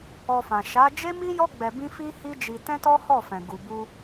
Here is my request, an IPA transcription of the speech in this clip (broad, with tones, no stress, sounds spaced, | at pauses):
ɔ˧ f ã˨ ʃ a˨˦ d͡ʒ e˦ m i˦ j ɔ˦ ɡ͡b ɛ˧ b ĩ˦ f i˦ h i˦ d͡ʒ i˧ t ɛ̃˦ t ɔ˦ h ɔ˦˨ f ɛ̃˨ ɡ u˨ b u˧